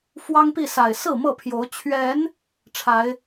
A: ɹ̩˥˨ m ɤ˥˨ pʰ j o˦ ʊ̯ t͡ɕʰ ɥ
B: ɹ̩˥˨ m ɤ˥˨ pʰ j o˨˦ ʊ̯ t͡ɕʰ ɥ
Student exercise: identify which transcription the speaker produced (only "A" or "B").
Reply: B